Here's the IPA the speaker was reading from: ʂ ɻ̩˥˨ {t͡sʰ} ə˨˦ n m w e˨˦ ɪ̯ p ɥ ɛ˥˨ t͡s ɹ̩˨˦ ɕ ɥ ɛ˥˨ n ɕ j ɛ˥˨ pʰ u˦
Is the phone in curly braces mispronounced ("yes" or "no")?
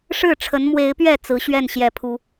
yes